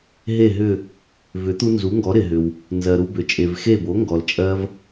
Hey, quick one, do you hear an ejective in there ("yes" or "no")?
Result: yes